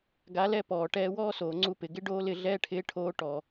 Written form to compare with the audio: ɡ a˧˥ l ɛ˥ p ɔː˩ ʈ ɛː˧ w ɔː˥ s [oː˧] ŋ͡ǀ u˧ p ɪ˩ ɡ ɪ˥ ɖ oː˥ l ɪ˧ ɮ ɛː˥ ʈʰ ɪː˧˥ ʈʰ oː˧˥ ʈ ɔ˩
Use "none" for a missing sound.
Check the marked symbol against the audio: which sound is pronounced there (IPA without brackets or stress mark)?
oː˩